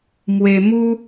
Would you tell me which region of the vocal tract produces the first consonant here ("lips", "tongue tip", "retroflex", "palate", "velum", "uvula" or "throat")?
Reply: lips